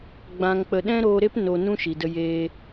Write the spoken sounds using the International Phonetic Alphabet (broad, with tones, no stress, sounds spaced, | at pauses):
ɡ͡b ã˧ ŋ k͡p ə˧ ɗ ɛ̃˦ ɾ oː˧ ɾ e˦ p n o˧ n ũ˦ ʃ i˨ d ə˧ j eː˧